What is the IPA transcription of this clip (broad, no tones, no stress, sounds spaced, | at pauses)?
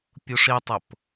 pʲ u ʂ i tˤ ʊ p